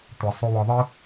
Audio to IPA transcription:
tʷ ɛ˨ sˤ u˧ w ɔ˧ ðˤ ɨ˦

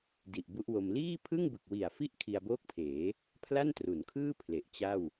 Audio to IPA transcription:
d i˨˩ ʔ b u˦˥ ʔ w o˧ m l iː˥˩ pʰ ɯ˥˩ ŋ b ɯ˨˩ k̚ w i˨˩ a̯ f i˥˩ ʔ kʰ i˧ a̯ b oː˥˩ k̚ pʰ eː˩˦ | pʰ l a˥˩ n t r u˩˦ n kʰ ɯː˥˩ pʰ l e˨˩ ʔ t͡ɕ a˥˩ w

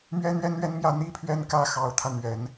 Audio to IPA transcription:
m ɥ ɛ˥ n̪ ɥ ɛ˥ n ɥ ɛ˥ n m j ä˥˩ n̪ i˥ pʰ ɥ ɛ˥˧ n k ä˥˩ x ɑ˧˥ ʊ̯ t̪ʰ ä˧ n̪ ɥ ɛ˨˩˦ n

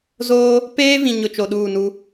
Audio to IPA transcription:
z oː˦ | p eː˦ v ĩ˨ ɲ ʊ˨ t͡ʃ o˨ ɗ uː˦˨ n u˦

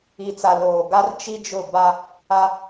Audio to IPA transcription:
i˨ t͡s a˨ l oː˨ ɡ a˦ r t͡ʃ i˦ d͡ʒ ʊ˦˨ b a˦ | a˦

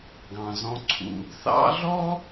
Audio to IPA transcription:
ɡ ɑ̃˩ z ɔ̃˨ ǀʰ ṵ˨ | θ ɑ̰˥ ɮ ɔ˥

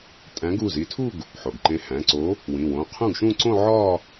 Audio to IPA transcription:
tʼ æ̃˨˥ ɡ u˩˧˩ z i˨˥ tʰ u˥˧ ɡ | ħ o˩ ɡ ǃ ẽ˨˥ h æ̃˩˧˩ ǀ o˨˥ | w ĩ˩˧˩ w õ˩˧˩ qʰ ũ˥˩ ɡ ʃ ũ˥˧ ǀ õ˥˧ ʕ ɒ˥˧

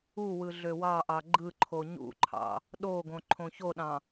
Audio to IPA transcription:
u w ɯ ɮ ø w ɑ ʔ ɑ ɡ͡ǃ ɯ ǃʰ o ɲ ṵ ǃʰ ɑ̰ | ɗ o ɡ õ ǃʰ õ ç o ɗ ɑ̃

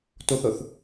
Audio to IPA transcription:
t o θ ɤ θ

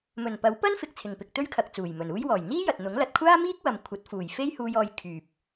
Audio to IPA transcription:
m ɵ˨˩ n p ɐ˨˥ w p ɐ˥ n f ɪ˨ k̚ t͡sʰ ɪ˨˩ ŋ p ɪ˨ k̚ t̪ ɵ˥ ɥ kʰ ɐ˨ k̚ t͡s uː˨˩ j m ɵ˨˩ n uː˥ j w ɔː˨˩ j n̪ iː˥ j ɐ˨ t̚ n̪ ʊ˨˥ ŋ l ɐ˨ t̚ kʷʰ aː˥ m iː˥ k̚ w ɐ˨ m kʷʰ ɐ˨˥ t̚ f uː˨˩ j f e˥ j h uː˧ j ɔː˧ j kʰ yː˨ p̚

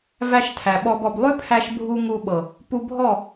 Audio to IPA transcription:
v æ˧ ʃ tʰ æ˨ ɓ ɔ˧ b ɔ˧ b lˠ ʏ˦ pʰ æ˧ ʃ bʱ u˧ ŋ u˧ ɓ ɤ˨ | p u˧ bʱ ɔ˦˨

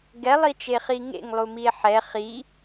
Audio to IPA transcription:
ɡ ɛ lˠ i t͡ʃ e χ i ŋ ḛ ŋ lˠ u m i e̯ ħ ɛ χ i

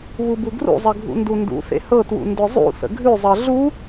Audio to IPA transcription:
β u b u ɡ r ṵ zˤ ə ɡʱ ṵ n d u n d ṵ θ ḛ h ɤ t w ṵ n d ʊ zˤ ṵ θ ə̰ ɡʱ ʉ zˤ ɤ ɮ u

